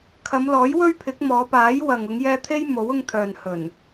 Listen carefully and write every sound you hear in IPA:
kʰ ɐ˨˧ m l ɔː˨˥ j w ɵ˥ ɥ pʰ ɪ˨˥ k̚ m ɔː˨˧ p aː˨˥ j w ɐ˨ ŋ ʊ˨˧ ŋ j ɛː˧ t̪ʰ e˥ j m o˨˥ w ʊ˧ ŋ t̪ʰ œː˨ n h ɵ˨˩ n

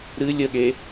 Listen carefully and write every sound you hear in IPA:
ɾ ɨ lʲ ə ɠ e

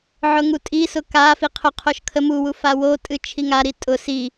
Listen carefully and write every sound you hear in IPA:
ʕ ʊ ŋ u tʼ i s ʊ k a f i qʰ ʊ qʰ o ʃ kʰ ə m u w u f a w o tʼ ɨ t͡ʃʰ i ŋ a ɾ i tʼ ʊ s i

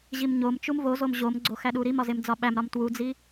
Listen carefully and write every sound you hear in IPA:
ʑ i m ɲ o m t͡ʃ u m v o z o m ʑ o m ɡ͡ǀ o x æ ɗ u ɾ i m ɒ z e m d͡z ɒ ɓ æ m ɾ ɒ m t w u d͡z i

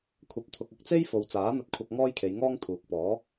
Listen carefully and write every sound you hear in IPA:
kʷʰ ɐ˨ p̚ t̪ʰ ʊ˨ k̚ ɐ˧ k̚ t͡s e˥ j f o˨ w t͡s aː˨˥ n̪ ɐ˧ t̚ kʷʰ ɐ˧ k̚ ŋ ɔː˥ j kʰ e˨˧ j ŋ ɔː˥ ŋ t̪ʰ uː˨ k̚ p ɔː˨˥

